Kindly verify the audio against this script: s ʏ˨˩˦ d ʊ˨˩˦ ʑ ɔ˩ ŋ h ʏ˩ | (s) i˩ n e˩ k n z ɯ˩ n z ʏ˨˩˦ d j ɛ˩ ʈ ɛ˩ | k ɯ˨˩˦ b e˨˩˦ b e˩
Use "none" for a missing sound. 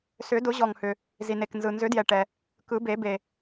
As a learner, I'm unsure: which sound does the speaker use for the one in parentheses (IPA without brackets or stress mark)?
z